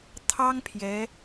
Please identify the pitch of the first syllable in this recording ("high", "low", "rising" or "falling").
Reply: high